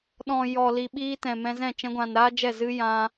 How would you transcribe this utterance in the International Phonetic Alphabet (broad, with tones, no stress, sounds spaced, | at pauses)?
ɗ ɔ̃˨ j ɔ˨ l i˨ ɓ iː˧ t ɛ̃˨ m ɛ̃˧ z ɛ̃˦˨ t͡ʃ ɛ̃˧ ɡʷ ã˨ n ɾ aː˦ d͡ʒ ɛ˦˨ z ɨ˦ j ã˧